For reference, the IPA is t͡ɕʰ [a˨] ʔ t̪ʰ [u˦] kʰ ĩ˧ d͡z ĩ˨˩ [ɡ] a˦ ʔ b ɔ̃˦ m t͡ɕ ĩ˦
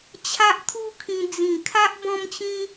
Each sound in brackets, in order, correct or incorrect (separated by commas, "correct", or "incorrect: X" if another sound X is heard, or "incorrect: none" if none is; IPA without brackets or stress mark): incorrect: a˦, correct, incorrect: kʰ